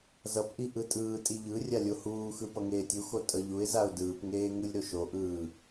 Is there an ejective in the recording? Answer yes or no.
yes